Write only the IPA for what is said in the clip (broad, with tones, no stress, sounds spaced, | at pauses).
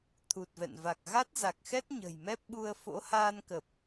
t̪ʰ u˨˩ t̚ v ɛ̰˧˨ n v a˨˩ k̚ ɣ a˦˥ t̚ z a˨˩ k̚ x ɛ˦˥ t̚ ɲ ə̤˨˩ j m ɛ˦˥ p̚ ɓ u˧ ə̯ f o̰˧˥ h aː˧ n k ə˨˩ p̚